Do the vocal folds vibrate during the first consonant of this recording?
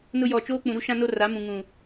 yes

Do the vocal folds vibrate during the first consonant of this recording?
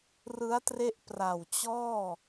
yes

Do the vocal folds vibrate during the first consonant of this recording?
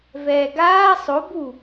yes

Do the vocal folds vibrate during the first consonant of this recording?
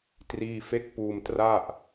no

